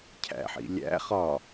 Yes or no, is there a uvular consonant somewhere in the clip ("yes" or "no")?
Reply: yes